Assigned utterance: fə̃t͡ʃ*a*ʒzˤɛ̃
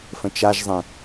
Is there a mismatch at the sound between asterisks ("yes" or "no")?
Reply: no